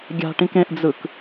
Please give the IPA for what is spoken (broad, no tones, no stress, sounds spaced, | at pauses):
ɡʲ a̤ ʈ ĩ k ẽ ʔ d͡z ɯ k